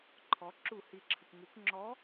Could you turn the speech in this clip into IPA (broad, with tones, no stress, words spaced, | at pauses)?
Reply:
ǃʰɔ˩˧ ǁu˧˩˧hi˩ǁʰə˩kʷ ŋu˩˧kʷŋ͡ǁɔ˨˥